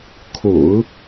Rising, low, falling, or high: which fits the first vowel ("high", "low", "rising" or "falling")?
low